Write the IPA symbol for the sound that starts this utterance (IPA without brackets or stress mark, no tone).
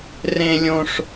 r